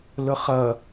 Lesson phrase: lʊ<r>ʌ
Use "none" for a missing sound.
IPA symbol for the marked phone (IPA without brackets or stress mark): χ